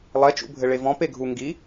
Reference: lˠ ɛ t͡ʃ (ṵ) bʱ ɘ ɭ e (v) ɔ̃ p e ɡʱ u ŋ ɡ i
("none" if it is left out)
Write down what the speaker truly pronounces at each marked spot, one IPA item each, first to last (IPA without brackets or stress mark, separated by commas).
ṵ, v